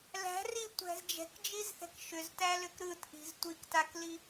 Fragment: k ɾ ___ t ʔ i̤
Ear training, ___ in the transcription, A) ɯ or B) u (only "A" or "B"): A